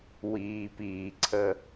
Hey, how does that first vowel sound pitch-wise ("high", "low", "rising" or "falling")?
low